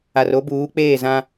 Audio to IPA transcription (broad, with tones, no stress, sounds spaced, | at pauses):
a˨ r o˦ b uː˨˦ k͡p eː˦˨ z ã˦